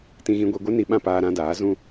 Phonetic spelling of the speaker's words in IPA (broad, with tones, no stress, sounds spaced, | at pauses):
t ĩ˧ ɣ ĩ˧ ɡʷ i˧ ɡʷ ɛ˦ n i˧ ɓ ã˦˨ p aː˧ ɾ ã˧ d aː˨˦ z ũ˦